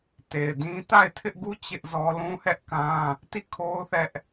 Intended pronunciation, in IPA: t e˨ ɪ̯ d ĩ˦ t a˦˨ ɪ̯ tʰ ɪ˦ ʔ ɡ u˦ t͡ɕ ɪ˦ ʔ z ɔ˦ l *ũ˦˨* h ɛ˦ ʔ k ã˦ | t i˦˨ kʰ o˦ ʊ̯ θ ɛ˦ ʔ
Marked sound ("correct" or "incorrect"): incorrect